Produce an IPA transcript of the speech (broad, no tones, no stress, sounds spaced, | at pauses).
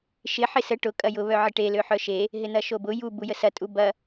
ʃ ɪ ħ ɪ s ə ʈ ʊ kʼ ɐ j ʊ β œ ʕ ɪ ʈ e l ø ħ œ ʃ e | ɦ ɪ n̪ ɐ ʃ o b ʊ j u b u j ə s ɐ tʼ u b ɐ